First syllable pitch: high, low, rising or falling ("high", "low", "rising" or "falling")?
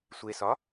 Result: low